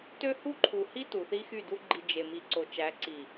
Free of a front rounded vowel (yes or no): no